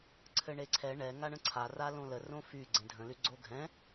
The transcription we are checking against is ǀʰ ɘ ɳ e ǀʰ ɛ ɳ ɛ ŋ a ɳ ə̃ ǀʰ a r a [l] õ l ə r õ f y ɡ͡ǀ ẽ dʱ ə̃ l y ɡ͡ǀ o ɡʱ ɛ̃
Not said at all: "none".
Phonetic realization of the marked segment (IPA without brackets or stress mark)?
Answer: l